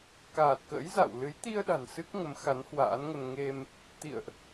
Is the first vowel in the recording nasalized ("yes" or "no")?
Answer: no